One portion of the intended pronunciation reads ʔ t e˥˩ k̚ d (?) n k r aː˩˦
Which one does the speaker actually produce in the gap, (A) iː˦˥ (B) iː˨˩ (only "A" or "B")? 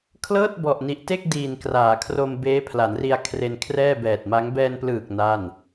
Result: B